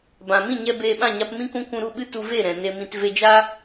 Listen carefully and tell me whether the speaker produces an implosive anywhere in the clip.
yes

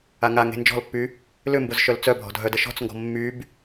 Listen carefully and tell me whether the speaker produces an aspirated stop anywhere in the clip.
no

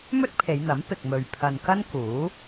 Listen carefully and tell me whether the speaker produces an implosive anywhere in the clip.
no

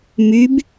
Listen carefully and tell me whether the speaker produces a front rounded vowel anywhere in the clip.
yes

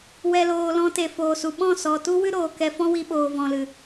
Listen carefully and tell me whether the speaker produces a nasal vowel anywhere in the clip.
yes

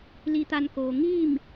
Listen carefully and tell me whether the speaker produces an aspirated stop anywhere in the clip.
no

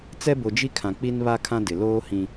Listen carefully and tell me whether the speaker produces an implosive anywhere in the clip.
no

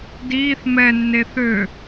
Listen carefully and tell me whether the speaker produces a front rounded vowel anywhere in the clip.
yes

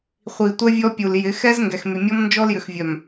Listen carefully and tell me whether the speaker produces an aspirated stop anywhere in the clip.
no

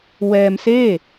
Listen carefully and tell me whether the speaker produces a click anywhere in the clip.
no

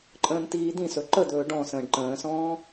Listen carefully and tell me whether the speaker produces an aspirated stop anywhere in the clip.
no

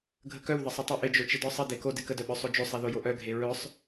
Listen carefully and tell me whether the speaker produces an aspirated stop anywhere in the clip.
no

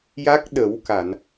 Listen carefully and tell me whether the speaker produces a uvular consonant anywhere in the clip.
no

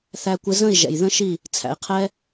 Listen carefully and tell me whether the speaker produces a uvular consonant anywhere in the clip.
yes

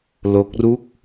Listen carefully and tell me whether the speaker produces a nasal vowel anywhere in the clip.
no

